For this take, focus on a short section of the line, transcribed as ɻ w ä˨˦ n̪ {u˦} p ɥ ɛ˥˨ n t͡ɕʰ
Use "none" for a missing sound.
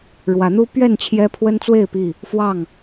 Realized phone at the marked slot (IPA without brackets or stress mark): u˦